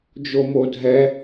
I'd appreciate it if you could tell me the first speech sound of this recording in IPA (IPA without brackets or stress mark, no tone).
d͡ʒ